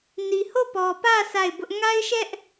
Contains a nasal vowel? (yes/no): no